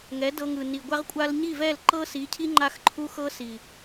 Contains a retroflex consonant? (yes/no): no